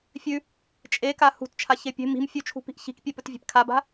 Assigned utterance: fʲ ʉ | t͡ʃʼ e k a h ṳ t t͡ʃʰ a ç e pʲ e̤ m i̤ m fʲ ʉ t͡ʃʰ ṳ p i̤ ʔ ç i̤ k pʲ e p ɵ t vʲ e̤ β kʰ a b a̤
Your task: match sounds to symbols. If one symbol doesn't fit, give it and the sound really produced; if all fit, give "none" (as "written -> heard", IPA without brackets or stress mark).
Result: β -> p